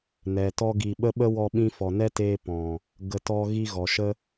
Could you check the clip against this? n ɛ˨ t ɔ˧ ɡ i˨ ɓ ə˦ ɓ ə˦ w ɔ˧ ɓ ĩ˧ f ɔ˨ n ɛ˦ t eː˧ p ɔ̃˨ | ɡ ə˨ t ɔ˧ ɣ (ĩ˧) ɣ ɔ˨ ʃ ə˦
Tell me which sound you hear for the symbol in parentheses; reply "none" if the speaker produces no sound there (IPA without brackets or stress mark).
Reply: i˧